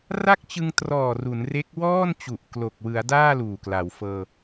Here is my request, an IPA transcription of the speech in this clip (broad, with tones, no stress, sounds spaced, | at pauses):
r a˥˩ k̚ t͡ɕ ɯ˧ ŋ t r ɔː˨˩ r u˩˦ n r e˦˥ k̚ w ɔː˥˩ n t͡ɕ u˨˩ ʔ k l o˨˩ k̚ w ɯ˩˦ a̯ d aː˥˩ l uː˨˩ k l a˩˦ w f ɤː˧